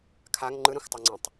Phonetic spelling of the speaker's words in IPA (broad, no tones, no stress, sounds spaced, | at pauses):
kʰ a ŋ ŋ͡ǃ ɯ ɾ ɛ̃ xʷ tˤ o ŋ͡ǀ ẽ tˤ